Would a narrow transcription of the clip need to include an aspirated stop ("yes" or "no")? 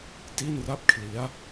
yes